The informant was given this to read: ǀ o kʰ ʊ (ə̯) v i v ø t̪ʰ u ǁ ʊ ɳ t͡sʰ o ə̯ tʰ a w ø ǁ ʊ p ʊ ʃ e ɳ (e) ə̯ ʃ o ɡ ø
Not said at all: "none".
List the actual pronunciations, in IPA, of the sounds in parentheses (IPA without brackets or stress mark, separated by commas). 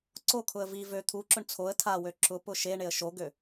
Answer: ə̯, e